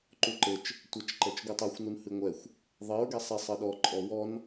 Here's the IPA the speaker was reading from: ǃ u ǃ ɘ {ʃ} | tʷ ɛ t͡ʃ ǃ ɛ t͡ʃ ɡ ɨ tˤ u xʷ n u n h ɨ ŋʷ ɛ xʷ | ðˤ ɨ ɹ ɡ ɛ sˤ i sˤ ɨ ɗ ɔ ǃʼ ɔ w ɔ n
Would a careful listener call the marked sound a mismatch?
yes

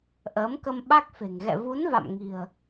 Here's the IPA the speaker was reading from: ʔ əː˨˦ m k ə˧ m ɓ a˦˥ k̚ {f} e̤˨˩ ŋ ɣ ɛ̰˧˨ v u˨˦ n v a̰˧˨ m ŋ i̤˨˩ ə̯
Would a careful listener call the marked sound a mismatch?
no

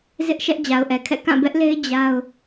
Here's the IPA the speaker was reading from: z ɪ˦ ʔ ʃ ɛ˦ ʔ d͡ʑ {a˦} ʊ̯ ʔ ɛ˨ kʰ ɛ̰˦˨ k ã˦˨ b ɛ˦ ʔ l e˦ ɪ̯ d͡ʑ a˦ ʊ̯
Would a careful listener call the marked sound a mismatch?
yes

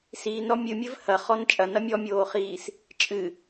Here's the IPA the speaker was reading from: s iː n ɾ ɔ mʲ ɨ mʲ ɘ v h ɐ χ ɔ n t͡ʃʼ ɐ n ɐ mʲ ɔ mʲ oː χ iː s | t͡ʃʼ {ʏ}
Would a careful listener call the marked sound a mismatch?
yes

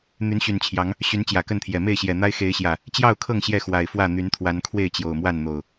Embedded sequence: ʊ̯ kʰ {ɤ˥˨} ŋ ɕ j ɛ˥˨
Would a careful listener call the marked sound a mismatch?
no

